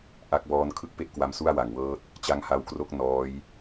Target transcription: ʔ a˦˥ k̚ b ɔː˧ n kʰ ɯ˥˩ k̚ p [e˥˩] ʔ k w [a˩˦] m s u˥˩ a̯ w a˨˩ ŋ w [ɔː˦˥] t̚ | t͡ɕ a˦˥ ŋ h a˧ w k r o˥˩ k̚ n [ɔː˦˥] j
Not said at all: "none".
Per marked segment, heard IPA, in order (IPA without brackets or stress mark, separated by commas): e˥˩, a˧, ɤː˦˥, ɔː˦˥